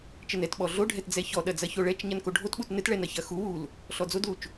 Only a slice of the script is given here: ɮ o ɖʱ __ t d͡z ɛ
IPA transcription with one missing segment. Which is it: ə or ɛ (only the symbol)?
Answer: ɛ